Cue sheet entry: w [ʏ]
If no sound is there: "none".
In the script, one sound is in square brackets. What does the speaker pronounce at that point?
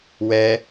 ɛ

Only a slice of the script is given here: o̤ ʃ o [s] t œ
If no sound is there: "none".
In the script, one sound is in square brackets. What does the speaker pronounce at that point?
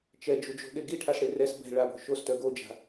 s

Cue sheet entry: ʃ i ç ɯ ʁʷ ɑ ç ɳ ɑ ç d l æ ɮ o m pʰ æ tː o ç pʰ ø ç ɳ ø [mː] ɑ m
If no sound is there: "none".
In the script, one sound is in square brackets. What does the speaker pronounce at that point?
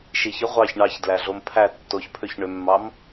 mː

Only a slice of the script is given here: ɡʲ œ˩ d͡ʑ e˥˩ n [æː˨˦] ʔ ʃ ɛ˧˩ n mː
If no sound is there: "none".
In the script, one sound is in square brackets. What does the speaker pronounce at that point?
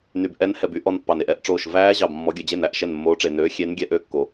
æ˨˦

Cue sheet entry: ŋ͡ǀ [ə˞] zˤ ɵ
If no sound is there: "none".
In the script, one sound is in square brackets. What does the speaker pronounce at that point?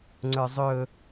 ə˞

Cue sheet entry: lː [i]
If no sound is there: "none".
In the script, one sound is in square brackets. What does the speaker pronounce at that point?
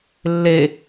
e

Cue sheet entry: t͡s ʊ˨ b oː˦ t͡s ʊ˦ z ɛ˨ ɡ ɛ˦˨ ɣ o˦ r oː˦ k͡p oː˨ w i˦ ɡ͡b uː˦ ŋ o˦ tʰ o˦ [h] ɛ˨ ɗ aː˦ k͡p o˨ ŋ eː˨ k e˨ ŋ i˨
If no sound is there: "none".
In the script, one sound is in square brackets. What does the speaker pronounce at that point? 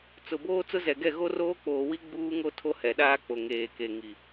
h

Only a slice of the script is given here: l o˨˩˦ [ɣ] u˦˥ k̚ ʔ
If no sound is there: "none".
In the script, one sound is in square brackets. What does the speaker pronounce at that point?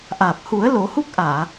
h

